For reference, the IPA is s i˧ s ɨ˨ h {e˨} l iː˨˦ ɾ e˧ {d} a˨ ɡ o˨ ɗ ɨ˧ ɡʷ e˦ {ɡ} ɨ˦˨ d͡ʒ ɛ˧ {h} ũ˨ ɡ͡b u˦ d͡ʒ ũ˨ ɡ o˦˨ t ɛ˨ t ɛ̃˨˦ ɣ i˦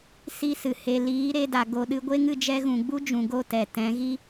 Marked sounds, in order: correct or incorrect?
correct, correct, incorrect: ŋ, incorrect: ɣ

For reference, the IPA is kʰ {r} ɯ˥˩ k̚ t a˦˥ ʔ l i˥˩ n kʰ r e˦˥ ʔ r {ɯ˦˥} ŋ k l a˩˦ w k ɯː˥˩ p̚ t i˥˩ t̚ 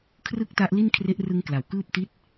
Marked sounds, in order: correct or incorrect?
correct, correct

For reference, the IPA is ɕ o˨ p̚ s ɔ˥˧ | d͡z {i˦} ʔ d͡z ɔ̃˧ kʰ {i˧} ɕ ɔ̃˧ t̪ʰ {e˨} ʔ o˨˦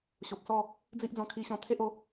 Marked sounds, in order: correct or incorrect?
correct, correct, incorrect: e˦

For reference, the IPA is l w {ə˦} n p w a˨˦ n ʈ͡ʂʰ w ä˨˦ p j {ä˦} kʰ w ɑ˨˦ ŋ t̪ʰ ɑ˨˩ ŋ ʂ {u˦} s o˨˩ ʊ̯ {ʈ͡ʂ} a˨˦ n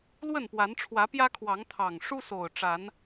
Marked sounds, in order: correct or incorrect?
incorrect: ə˥˨, correct, correct, correct

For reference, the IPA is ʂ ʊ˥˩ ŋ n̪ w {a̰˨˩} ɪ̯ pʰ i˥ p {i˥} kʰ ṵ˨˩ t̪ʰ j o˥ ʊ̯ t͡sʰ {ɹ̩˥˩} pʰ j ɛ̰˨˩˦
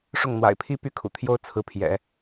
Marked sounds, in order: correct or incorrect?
correct, incorrect: y˥, incorrect: ɹ̩˧˥

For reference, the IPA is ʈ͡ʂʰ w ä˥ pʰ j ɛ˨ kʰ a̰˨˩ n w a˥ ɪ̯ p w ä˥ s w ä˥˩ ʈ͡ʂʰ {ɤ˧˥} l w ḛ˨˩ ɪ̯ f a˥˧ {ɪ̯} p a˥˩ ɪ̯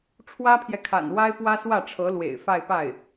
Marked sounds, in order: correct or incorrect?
correct, correct

